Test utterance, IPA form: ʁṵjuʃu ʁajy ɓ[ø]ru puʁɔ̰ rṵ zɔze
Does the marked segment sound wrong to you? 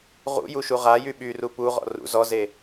yes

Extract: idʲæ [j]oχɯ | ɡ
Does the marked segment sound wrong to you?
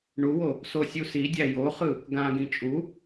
no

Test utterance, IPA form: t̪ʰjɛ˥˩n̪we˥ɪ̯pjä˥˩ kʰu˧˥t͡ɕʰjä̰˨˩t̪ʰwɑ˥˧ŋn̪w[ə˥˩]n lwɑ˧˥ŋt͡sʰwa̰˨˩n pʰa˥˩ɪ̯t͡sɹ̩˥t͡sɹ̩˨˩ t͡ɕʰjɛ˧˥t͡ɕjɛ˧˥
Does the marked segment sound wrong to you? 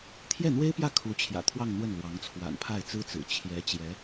no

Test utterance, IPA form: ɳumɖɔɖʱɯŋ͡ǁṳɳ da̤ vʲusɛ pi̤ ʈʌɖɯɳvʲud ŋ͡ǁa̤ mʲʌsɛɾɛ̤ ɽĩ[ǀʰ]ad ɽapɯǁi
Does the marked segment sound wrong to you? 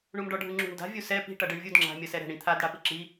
yes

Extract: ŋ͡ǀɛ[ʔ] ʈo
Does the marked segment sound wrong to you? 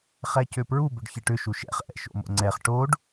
yes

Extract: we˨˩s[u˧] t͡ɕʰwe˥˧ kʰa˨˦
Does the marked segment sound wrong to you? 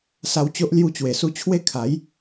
no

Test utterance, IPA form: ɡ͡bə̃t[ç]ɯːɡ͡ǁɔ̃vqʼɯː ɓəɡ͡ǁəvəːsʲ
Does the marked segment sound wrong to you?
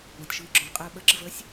yes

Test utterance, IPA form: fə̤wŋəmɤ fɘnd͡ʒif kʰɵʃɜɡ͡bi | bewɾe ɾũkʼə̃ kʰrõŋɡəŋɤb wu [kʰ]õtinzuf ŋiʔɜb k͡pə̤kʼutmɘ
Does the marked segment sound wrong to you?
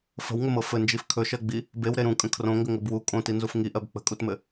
yes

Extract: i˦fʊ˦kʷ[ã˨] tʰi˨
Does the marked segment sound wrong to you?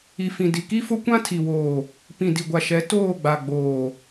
yes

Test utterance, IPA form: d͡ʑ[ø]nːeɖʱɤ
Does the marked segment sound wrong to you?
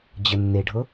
yes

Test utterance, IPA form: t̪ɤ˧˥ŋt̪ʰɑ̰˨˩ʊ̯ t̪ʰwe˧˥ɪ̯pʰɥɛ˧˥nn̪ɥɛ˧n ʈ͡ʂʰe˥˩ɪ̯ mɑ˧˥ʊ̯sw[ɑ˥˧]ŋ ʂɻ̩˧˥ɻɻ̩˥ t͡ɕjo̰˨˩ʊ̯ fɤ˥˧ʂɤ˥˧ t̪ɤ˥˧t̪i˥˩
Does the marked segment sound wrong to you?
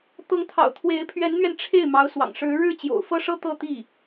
yes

